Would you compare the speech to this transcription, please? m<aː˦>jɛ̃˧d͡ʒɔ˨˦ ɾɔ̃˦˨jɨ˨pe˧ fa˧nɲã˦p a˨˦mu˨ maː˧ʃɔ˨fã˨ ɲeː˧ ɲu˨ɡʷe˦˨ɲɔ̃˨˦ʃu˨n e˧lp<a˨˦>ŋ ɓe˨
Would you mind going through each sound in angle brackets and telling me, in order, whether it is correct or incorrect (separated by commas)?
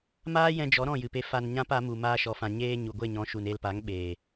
correct, correct